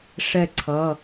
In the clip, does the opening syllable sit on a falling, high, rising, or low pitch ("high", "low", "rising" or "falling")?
falling